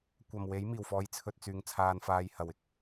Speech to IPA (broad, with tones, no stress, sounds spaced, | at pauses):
kʷ ɐ˨˩ m w e˨˥ j m iː˨˩ w f ɔː˨˧ j t͡sʰ ɵ˧ t̚ t͡s yː˨ ŋ t͡sʰ aː˧ n f aː˧ j h ɐ˨ w ɪ˨ k̚